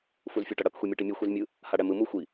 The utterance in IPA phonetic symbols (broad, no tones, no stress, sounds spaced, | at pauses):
f u z fʲ u ʈ ʌ ɽ ʌ k xʷ i mʲ e ʈ i mʲ u xʷ i z mʲ ɯ | h a ɽ ɛ m ɯ m u xʷ i